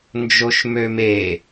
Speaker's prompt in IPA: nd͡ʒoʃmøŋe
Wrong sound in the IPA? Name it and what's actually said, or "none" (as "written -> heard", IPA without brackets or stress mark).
ŋ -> m